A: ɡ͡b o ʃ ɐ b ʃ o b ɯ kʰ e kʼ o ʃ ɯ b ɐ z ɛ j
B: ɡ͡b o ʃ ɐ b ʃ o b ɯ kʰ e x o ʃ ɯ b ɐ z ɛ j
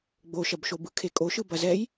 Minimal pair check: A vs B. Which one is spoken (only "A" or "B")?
A